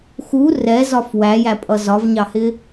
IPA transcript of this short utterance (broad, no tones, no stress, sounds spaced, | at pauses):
x u r ɛ z ɒ f w æ j æ pʼ ʌ z ɒ v ɲ ɑ h ɪ